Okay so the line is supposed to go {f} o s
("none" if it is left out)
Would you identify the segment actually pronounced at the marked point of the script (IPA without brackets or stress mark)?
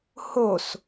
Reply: h